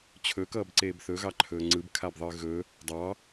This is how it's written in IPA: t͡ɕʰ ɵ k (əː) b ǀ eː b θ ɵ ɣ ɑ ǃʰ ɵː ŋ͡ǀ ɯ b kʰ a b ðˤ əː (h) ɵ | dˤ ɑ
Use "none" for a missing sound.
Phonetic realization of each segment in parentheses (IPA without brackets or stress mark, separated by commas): ʌː, ɣ